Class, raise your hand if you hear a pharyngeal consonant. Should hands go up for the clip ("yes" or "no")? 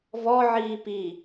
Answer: yes